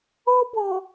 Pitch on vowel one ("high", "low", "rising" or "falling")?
high